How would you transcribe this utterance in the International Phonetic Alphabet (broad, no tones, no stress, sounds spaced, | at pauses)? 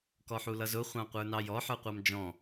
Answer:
k ɔ ħ u l ʌ z ʊ χʷ ɑ̃ qʷ ə˞ n ɑ j ɔ ħ ə˞ qʷ ɑ m d͡ʒ ɔ̃